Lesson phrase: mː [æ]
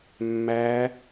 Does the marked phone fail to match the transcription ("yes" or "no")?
no